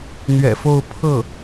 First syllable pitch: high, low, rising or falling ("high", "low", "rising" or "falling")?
low